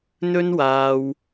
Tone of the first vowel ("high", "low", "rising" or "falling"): high